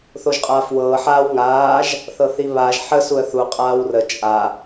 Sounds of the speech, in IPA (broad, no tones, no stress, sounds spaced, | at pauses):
θ o ʒ qʼ aː f w ɤː ħ aː w ŋ aː ʒ | θ ɤ θ i β aː ʒ ħ ə s u ə̯ θ u qʼ aː w r ə t͡ʃʼ a